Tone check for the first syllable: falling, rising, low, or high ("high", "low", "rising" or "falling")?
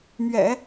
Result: low